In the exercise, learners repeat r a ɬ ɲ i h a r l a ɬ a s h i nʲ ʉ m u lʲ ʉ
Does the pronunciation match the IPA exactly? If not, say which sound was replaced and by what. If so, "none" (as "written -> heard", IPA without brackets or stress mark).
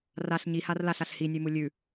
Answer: s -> ɬ